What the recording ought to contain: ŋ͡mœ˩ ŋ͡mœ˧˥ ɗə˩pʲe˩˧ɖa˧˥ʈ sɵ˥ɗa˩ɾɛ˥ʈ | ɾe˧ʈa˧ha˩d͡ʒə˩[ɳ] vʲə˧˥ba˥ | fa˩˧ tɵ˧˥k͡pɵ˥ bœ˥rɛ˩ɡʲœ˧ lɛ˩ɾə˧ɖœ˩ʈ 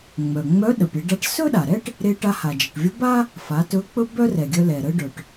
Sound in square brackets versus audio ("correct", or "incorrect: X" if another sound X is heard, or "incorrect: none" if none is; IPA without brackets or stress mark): incorrect: ʈ